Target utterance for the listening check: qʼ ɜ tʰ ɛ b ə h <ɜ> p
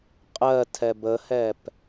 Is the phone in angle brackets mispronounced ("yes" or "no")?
yes